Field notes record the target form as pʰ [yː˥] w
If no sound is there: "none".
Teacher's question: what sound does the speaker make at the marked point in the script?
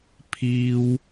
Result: iː˥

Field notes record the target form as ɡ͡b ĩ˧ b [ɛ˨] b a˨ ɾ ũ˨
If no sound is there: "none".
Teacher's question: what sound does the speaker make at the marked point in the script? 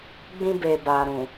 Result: e˨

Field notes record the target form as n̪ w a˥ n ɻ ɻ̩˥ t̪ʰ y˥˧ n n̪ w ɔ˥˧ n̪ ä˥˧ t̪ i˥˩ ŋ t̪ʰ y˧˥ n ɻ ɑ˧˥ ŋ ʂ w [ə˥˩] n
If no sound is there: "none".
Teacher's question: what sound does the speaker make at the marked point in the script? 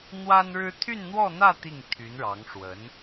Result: ə˧˥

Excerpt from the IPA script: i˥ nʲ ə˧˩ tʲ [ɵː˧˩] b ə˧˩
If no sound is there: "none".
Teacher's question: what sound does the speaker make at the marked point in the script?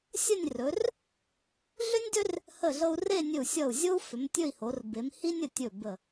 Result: ɵ˧˩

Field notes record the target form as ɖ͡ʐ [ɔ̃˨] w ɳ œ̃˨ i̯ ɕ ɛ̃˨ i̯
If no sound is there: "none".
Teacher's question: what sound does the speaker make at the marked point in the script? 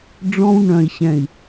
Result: ɔ̃˦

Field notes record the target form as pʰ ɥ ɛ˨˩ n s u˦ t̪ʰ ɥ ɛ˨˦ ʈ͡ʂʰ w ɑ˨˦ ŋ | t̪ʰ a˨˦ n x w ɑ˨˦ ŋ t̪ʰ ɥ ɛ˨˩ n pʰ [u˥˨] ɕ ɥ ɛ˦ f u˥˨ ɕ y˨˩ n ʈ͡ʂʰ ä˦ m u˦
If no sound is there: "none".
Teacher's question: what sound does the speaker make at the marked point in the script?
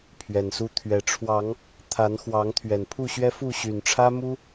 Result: u˥˨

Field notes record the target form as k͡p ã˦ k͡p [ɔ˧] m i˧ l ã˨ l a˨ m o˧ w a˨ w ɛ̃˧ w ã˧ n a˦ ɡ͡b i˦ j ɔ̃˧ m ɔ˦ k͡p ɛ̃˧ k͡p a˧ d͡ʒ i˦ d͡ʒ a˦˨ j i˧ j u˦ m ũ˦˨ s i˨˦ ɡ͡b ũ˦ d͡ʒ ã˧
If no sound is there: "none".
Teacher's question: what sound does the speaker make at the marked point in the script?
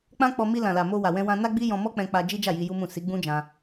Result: ɔ˧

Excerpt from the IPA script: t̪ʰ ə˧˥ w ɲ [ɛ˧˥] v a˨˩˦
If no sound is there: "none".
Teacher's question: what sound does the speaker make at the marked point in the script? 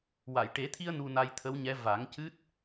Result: ɛ˧˥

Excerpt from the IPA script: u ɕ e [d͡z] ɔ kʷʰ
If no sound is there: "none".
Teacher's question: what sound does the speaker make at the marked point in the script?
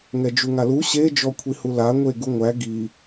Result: d͡ʒ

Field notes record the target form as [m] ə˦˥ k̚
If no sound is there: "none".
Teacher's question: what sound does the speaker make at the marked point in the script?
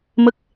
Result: m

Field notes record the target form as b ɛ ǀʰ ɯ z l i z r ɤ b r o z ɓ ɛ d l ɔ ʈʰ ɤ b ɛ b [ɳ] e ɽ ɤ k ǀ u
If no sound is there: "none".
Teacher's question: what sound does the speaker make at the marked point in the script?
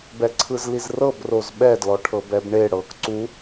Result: ɳ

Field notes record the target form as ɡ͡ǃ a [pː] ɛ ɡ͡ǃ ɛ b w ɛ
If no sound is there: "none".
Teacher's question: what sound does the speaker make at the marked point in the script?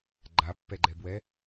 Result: pː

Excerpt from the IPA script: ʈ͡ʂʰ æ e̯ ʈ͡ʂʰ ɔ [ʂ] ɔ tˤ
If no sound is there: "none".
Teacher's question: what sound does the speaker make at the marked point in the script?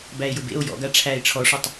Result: ʂ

